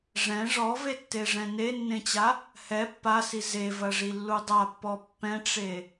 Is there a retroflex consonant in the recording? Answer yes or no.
yes